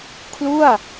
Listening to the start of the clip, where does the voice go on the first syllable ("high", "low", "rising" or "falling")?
falling